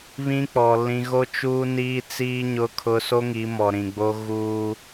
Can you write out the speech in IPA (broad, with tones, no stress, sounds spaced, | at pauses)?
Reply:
β ĩ˦ k͡p ɔ˨ l ĩ˨ ɣ o˦ t͡ʃ uː˦ n iː˦ t͡s iː˦ ɲ ʊ˦ kʰ ʊ˦ s o˦ ŋ i˨˦ m ɔ˨ ɾ ĩ˨ ɡ͡b o˦ ɣ uː˦